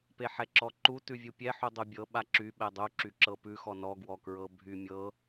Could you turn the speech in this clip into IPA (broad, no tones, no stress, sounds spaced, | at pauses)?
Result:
p e ħ ɛ ǁ ɔ ǃ u t ʉ vʲ u pʲ ɛ ħ u dˤ u bʲ ɤ ɓ a ǁ y ɓ ɛ dˤ u ǁ y ǁ ɤ p ʉ x ɔ n ɔ ɡ w ɔ k ɹ ɤ bʱ y mʲ ɤ